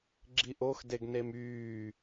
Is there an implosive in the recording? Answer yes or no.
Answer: no